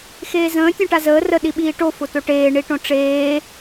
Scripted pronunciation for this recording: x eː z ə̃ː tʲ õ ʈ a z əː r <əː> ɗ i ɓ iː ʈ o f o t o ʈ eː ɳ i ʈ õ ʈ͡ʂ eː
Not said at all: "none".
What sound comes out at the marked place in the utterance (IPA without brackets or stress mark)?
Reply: ə